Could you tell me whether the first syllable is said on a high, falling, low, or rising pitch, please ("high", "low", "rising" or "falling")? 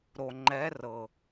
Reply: low